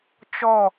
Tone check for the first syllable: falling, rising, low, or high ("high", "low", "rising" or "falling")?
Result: falling